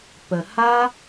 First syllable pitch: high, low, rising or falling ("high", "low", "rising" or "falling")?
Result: low